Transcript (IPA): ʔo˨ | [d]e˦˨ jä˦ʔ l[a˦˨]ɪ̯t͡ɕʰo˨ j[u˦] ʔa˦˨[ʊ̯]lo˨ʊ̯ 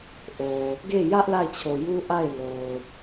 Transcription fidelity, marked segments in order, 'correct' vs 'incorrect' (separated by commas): incorrect, correct, correct, incorrect